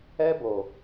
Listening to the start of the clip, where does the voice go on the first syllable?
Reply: high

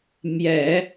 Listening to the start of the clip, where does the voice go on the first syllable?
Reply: low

